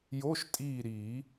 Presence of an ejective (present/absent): present